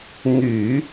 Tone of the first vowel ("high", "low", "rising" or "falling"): low